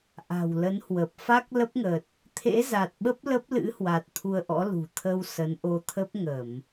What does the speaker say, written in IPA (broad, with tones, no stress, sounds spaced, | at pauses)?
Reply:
ʔ a̤˨˩ w l ə˨˦ n h w ə˨˩ p̚ f a˦˥ k̚ l ə˦˥ p̚ ŋ ə˨˩ t̚ | t̪ʰ ḛ˧˥ z a˨˩ t̚ ɓ ə˦˥ p̚ l ə˦˥ p̚ l ɨ̰˧˥ h w a˨˩ t̚ t̪ʰ u˧ ə̯ ʔ ɔ̰˧˥ l ṳ˨˩ t̪ʰ ə˧ w s ə˨˦ n ʔ o˧ t̪ʰ ə˦˥ p̚ ŋ ə˧˩˨ m